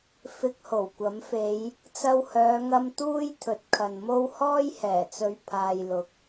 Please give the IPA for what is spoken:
f ɪ˧ k̚ h o˨˩ w kʷ ɐ˨˥ m f e˨˧ j | t͡s ɐ˧ w h œː˨˧ ŋ ɐ˧ m t̪ uː˥ j t̪ʰ ɵ˨˥ t̚ kʰ ɐ˨ n m o˥ w h ɔː˥ j h ɛː˨˩ t͡s ɵ˨˧ ɥ pʰ aː˨ j l ʊ˨˥ k̚

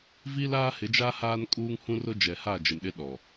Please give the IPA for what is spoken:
v i˦ l aː˦ h ɪ˨˦ d͡ʒ aː˦ h aː˦ n kʼ uː˦ ŋ h ũ˦ r ʊ˦ d͡ʒ ɛ˨ h a˦˨ d͡ʒ ɪ˨ m ɗ ɪ˦ ɗ ɔ˨

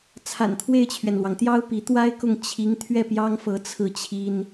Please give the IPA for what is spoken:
t͡sʰ a̰˨˩ n t̪ʰ w e˥˩ ɪ̯ t͡ɕʰ ɥ ɛ˩ n l w ɑ˩ ŋ t̪ j ɑ˥ ʊ̯ p i˧˥ t̪ w a˥ ɪ̯ k ʊ˥˩ ŋ t͡ɕʰ i˧˥ ŋ t̪ʰ ɥ ɛ˥˩ p j ɑ˥ ŋ f ɤ˧˥ t͡sʰ ɹ̩˥˩ t͡ɕʰ i˥ n

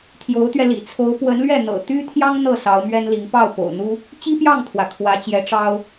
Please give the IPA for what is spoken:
t̪ʰ j o˧˥ ʊ̯ t̪ ɥ ɛ˧ l ḭ˨˩ t͡sʰ o˧˥ ʊ̯ p w ə˧˥ n l ɥ ɛ˥˩ n̪ ɤ̰˨˩ t̪ y˥ t̪ʰ j ɑ˥ ŋ n̪ ɤ˥˩ s ɑ˧˥ ʊ̯ m ɥ ɛ˥ n l i˧˥ ŋ p ɑ˥˩ ʊ̯ p o̰˨˩ ʊ̯ n̪ u˥ | t͡ɕ i˥ p j ɑ˥˩ ŋ t̪ʰ w ä˩ kʰ w ä˧˥ t͡ɕ j ɛ˧˥ ʈ͡ʂ ɑ˥ ʊ̯

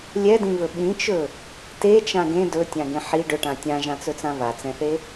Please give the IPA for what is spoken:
lʲ ɛ d ĩ v ɵ ɓ ĩ t͡ʃ ɵ | t e t͡ʃ ã ɡ ẽ d ɵ tʲ ã ɡ ẽ ħ i ɖ ɵ ʈ ã tʲ ã ʒ ã t͡s ɵ t͡s ã v a t͡s ɛ̃ θ e

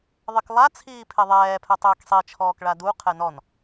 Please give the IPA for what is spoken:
ðˤ ɪ k lˠ a t͡sʰ iː pʰ e ðˤ ɛː pʰ ɛ tˤ ɪː k sˤ i t͡ʃʰ ɔː k ɭ a d u qʰ ɛ n ɔ n

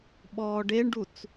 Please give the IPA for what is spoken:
ɓ ɔː ɖ e ɳ ɖ u t͡s

